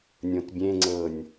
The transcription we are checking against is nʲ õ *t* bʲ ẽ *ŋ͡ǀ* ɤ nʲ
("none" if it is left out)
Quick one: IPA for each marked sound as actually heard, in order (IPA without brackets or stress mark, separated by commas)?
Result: t, ŋ͡ǀ